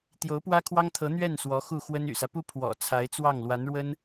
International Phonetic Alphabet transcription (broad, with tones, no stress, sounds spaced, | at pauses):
t̪ j o˧˥ ʊ̯ p w ä˥ kʰ w ɑ˥ ŋ t̪ʰ ɤ˧˥ n̪ ɥ ɛ˥˩ n s w ɔ˧˥ x u˥˩ x w ə˥ n y̰˨˩ s ä˦ p u˥ pʰ w ɔ̰˨˩ t͡sʰ a˧˥ ɪ̯ t͡s w ɑ˥˩ ŋ l w a˧˥ n ɻ w ə˥ n